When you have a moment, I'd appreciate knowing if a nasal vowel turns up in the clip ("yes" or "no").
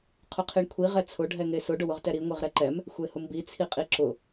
no